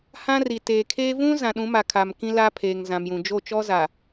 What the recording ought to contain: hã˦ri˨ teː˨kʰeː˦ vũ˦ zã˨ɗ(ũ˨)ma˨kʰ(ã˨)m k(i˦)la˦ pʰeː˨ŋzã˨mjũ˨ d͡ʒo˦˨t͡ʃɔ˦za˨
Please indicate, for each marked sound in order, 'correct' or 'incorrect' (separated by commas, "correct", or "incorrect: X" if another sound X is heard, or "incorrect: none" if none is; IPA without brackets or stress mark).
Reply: incorrect: ũ˨˦, incorrect: a˨, incorrect: ĩ˦